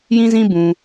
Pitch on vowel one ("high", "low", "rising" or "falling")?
high